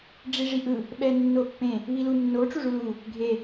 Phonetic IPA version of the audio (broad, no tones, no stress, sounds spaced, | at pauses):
ɖ͡ʐ i ʐ i ʔ ɯ | ɓ ɛ nː o pː ẽ | β i l u nː o ʈ͡ʂ u ʐ u l u | ɡʱ e